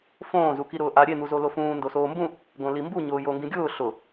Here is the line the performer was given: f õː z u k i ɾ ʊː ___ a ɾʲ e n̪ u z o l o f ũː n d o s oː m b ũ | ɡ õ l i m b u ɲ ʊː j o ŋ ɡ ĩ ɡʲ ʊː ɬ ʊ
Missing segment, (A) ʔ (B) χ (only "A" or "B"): A